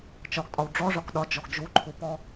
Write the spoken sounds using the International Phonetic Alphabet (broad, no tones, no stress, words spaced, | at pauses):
t͡ʃɒɡtʼɒw ɖ͡ʐɔʐɒk ɗɒd͡ʒɔɡ d͡ʒuǃʰupɔ